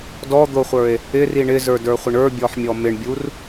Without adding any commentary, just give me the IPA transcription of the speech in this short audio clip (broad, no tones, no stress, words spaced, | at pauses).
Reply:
dɔd̪oχʷə˞e̯ | ɪri ɳɪzə˞də˞χʷɪɳ ə˞bʲɔħmʲɔ mɪɳbʲur